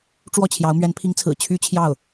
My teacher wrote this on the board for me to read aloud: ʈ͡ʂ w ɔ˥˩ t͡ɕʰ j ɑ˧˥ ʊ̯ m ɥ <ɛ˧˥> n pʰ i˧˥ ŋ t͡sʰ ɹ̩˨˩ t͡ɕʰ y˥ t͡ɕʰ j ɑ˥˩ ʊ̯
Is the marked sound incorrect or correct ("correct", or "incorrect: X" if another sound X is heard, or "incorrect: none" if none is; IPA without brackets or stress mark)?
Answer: correct